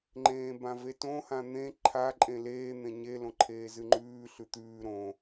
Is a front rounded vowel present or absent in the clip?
absent